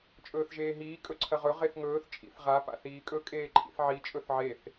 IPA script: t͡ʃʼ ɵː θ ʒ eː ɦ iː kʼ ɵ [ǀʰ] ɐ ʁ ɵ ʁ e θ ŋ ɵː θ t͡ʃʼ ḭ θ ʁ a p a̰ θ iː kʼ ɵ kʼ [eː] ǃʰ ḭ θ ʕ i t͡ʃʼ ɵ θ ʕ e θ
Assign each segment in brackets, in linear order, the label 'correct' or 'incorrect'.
correct, correct

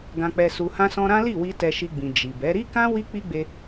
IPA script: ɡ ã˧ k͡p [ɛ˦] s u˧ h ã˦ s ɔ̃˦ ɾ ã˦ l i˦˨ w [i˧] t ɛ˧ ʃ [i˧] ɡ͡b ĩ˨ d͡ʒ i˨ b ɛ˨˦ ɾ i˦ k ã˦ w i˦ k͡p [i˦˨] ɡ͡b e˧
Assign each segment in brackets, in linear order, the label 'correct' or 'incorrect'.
incorrect, correct, correct, incorrect

